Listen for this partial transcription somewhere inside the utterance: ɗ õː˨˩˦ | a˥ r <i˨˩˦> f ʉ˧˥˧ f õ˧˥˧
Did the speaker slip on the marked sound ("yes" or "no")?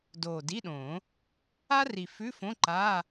yes